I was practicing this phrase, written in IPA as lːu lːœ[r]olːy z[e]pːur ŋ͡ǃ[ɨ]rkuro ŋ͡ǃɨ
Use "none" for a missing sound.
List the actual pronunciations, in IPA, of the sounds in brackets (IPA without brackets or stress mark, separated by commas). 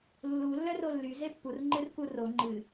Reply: r, e, ɨ